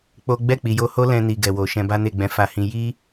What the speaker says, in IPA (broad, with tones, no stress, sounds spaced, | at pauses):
k͡p o˦ ɡ͡b ɛ˦˨ k͡p i˨ j o˧ h o˦ l ɛ̃˧ n i˨ ɡ ɛ˨ w o˨ ʃ ɛ̃˧ b a˦ n e˦˨ ɡ͡b ɛ̃˧ f a˧ h ĩ˧ j i˦